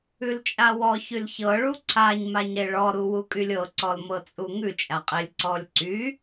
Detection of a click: present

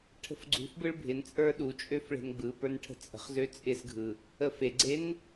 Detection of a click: present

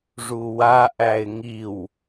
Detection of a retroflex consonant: present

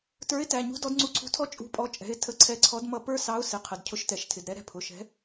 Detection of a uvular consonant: present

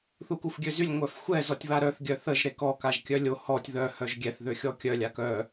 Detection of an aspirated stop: absent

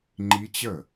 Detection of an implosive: absent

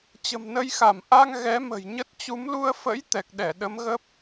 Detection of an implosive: present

